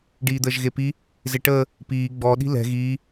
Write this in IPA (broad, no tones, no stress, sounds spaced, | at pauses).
ɖ iː d̪ əː ʒ ɣ e p i | z e ʈ əː | p iː ɡ͡b ɔ ɗ i̤ l ɛ̤ ɣ iː